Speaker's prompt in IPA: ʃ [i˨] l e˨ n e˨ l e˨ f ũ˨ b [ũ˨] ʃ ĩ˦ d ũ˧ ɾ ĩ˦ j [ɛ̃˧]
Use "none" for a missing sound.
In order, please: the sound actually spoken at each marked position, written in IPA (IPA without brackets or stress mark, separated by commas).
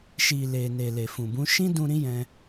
i˨, ũ˨˦, ɛ̃˧